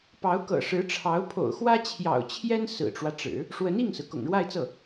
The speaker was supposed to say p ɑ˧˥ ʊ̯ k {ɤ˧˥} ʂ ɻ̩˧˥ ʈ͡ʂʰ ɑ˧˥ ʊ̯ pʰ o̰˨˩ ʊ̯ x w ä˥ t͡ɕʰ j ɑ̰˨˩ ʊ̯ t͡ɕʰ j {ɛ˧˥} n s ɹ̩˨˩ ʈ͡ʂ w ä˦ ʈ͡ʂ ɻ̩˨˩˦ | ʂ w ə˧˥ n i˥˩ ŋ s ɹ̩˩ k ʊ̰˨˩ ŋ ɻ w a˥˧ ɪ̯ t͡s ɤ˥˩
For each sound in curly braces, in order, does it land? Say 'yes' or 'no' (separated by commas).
no, no